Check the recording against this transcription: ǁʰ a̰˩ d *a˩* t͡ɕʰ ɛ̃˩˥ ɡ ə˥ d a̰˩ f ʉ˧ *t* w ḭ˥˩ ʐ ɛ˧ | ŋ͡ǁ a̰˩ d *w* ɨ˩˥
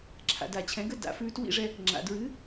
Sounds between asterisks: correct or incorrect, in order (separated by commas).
correct, correct, incorrect